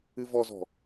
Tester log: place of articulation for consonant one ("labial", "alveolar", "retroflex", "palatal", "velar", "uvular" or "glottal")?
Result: labial